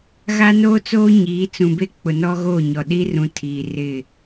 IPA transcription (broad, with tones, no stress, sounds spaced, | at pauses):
ɣ a˦ n oː˦ t͡s oː˦ ɲ iː˨˦ t͡s ũ˨ b e˦ k͡p ʊ˨ n ɔ˦ ɣ oː˦˨ ɲ ɔ˨ ɗ iː˦ r ũ˨ tʰ iː˨ r ɪ˦˨